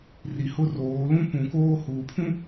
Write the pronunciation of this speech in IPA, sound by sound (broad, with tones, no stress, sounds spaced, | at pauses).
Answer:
r i˨ h ʊ˦˨ r oː˨˦ l ũ˦ p ũ˨ k oː˦ h uː˨ pʰ ũ˦